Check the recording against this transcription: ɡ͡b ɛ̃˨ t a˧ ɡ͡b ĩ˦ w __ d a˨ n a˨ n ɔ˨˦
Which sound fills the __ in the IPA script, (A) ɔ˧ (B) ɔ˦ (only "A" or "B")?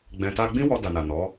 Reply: A